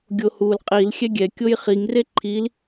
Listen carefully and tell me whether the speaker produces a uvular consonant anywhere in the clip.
yes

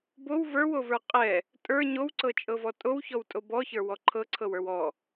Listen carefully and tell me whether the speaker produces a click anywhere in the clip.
yes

